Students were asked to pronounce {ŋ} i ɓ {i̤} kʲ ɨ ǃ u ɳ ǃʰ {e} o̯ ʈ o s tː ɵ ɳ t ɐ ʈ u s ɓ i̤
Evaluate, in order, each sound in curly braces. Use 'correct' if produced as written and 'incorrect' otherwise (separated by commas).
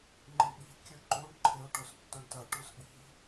incorrect, correct, correct